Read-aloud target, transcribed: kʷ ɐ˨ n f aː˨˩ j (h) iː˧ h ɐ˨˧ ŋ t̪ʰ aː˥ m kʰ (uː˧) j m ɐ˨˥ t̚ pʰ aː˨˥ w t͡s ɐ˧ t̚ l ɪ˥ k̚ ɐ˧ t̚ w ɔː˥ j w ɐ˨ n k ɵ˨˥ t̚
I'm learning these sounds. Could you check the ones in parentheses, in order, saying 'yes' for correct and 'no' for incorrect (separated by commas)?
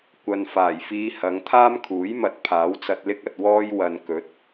no, no